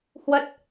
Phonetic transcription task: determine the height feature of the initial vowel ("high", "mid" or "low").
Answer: mid